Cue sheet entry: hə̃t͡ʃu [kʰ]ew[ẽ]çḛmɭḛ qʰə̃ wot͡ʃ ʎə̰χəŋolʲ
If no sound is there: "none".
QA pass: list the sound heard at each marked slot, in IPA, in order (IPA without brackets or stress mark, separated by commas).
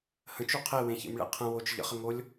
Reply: qʰ, ẽ